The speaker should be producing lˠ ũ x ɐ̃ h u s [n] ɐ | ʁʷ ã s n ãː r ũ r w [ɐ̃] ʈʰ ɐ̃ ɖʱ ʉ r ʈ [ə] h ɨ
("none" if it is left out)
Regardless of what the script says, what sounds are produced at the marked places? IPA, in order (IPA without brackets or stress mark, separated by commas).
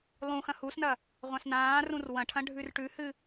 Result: n, ɐ̃, ʉ